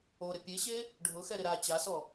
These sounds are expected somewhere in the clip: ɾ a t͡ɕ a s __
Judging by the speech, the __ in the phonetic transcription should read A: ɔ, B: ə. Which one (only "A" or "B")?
A